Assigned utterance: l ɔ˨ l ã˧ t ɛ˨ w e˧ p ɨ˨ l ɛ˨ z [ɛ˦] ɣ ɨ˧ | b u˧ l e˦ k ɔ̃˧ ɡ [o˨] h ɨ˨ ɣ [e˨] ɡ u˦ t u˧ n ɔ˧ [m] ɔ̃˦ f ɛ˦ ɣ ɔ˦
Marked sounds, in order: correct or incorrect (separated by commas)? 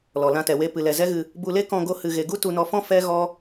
correct, incorrect, correct, incorrect